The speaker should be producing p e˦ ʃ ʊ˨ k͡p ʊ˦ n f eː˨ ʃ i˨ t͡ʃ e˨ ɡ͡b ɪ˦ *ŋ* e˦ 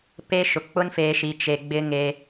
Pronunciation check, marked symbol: correct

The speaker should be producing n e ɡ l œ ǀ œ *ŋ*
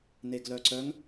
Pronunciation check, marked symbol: correct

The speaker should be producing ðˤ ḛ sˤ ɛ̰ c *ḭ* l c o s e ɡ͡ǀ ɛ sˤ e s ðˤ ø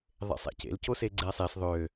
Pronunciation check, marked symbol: incorrect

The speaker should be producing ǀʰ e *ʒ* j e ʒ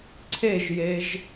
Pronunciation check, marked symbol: correct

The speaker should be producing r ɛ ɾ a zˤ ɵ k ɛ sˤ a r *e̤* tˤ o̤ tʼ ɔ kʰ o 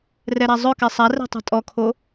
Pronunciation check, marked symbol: incorrect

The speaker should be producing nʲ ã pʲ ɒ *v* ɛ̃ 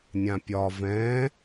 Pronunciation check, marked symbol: correct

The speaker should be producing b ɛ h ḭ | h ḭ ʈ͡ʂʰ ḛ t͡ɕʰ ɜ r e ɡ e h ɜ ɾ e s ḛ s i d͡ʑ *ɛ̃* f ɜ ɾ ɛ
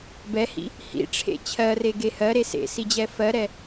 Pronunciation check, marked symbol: incorrect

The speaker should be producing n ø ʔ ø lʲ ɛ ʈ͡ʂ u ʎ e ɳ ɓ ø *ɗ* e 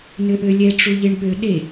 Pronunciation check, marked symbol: correct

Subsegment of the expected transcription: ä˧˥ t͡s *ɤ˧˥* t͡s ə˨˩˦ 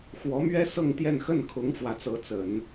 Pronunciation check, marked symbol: correct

